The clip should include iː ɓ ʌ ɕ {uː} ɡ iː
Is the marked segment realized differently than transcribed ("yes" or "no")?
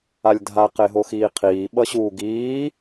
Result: no